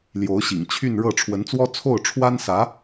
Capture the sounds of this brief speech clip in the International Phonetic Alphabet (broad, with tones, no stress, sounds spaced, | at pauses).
l j o˧˥ ʊ̯ ɕ ḭ˨˩ ŋ t͡ɕʰ y˥˧ n ɻ ɤ˥˩ ʈ͡ʂʰ w ə˧˥ n t͡s w ɔ˥ t͡sʰ o˥˩ ʊ̯ ʈ͡ʂʰ w a˥ n s ä˧˥